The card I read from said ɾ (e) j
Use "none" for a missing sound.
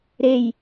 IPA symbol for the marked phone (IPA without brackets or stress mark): e